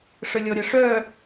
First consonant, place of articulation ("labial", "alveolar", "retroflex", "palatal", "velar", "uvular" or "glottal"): retroflex